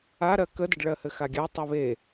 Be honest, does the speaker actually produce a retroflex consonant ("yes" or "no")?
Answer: yes